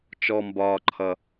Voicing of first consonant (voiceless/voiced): voiceless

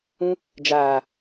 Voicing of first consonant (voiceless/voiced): voiced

